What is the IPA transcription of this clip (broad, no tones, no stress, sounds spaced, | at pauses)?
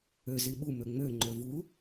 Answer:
ø z i ɓ u m ø ŋ͡m ø ŋ͡ǃ ø v u